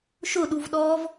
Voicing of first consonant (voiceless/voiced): voiceless